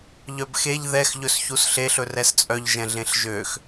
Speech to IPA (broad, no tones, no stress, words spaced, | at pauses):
ʎœbxeʎ ðɛx ʎɵsçusɬeɬ ɵrɛst͡sʼœʎ ʒɛ̃ɮẽɬʒøx